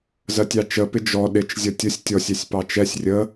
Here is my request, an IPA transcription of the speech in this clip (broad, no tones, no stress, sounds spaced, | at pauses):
z ɜ tʲ ɑ t͡ʃ ə p ɪ d͡ʒ ɔ ɗ ɪ t͡ʃ zʲ ʌ tʲ ə sʲ tʲ ɔ sʲ ɛ sʲ p ɑ t͡ʃ ɛ sʲ rʲ ə